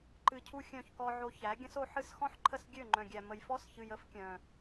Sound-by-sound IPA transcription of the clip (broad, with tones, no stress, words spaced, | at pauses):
ǃɨ˧cʰu˦xʲœ̃˦˨çkɔ˧ ʕo˧çæ˨˦ ɡʲə̃˦so˧ ħɨ˦s xɔ̃˦ħǃʰə˦˨s ɡʲø˦˨ŋ͡ǃœ̃˨ɡʲæ˨ mə˨jfɔ˦sçɨ˨j ə˦fkʲœ̃˨